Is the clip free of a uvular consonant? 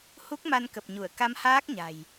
yes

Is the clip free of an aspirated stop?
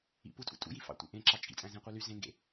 yes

